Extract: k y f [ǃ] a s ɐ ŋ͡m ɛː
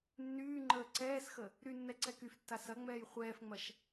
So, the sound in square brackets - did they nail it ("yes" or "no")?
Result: no